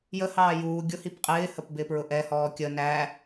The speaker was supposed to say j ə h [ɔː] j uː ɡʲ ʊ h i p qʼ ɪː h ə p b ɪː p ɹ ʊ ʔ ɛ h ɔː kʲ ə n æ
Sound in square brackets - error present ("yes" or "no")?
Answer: yes